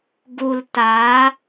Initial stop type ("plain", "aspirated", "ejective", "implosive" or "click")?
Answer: plain